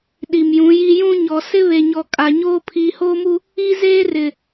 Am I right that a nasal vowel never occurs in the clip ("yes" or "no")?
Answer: no